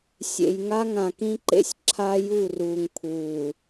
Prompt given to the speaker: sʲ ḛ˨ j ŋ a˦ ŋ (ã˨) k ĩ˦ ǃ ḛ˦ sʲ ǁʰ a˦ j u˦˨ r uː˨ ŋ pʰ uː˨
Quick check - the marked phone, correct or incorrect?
correct